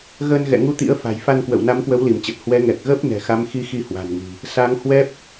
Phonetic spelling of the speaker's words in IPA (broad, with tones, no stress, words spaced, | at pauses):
ɣəː˧nɣɛ̰˧˨ŋu˧t̪ḭ˧˥ə̯ fa̤˨˩jfa˧nkwə̰˧˨w na˨˦mkwə˨˦wli˧˩mt͡ɕə˨˩t̚ hwɛ˨˦ ŋɛ˨˩k̚ɣəː˦˥p̚ nɛ̤˨˩xa˨˦m xi˧xi˧ hwa̤˨˩nŋi̤˨˩ | sa˨˦ŋ hwɛ˦˥p̚